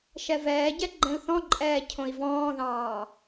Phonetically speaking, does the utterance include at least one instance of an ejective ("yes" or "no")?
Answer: yes